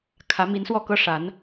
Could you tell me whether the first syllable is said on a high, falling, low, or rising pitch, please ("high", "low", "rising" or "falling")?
rising